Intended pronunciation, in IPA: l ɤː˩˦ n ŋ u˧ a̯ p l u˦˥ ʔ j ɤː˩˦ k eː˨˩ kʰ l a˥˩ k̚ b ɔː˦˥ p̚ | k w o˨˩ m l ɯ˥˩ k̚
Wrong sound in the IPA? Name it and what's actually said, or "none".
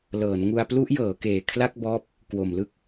none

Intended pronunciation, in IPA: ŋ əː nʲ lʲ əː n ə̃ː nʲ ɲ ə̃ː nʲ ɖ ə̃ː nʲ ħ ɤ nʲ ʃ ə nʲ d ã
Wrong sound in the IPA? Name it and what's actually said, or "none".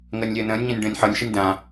none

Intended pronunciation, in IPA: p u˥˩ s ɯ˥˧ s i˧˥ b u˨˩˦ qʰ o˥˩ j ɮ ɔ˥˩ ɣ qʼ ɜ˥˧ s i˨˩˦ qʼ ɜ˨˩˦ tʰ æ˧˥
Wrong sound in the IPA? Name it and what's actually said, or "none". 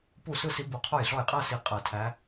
ɣ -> j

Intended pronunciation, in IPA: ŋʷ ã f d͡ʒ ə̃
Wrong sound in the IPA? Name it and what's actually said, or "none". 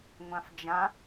ə̃ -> ã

